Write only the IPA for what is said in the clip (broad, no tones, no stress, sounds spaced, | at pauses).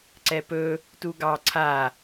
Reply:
ǀ ɛ p ɵ | t u ɡ ɑ ǀʰ a